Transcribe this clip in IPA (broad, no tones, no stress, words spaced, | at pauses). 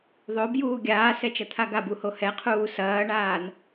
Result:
ðˤobjuː ɡʲaːsɛt͡ʃɐ t̪ʰaɡabuho hɛqʰuː sɐːɳaːn